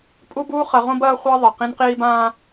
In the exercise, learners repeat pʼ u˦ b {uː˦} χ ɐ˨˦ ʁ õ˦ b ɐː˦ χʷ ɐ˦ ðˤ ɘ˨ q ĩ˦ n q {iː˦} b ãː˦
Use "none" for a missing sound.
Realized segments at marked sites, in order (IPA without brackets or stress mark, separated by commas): uː˦, iː˦